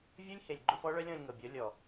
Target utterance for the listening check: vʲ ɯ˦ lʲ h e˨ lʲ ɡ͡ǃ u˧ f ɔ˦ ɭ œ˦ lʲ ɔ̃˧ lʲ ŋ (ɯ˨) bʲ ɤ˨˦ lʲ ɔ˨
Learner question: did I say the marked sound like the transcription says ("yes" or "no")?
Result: no